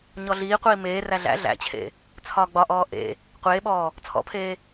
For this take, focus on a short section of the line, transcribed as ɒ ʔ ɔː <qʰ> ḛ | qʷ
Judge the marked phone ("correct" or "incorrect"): incorrect